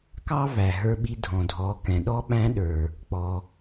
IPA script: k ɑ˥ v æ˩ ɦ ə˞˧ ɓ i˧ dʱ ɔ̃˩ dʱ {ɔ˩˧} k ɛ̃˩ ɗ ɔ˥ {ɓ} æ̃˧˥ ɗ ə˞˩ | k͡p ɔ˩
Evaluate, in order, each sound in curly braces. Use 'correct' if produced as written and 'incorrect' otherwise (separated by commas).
correct, correct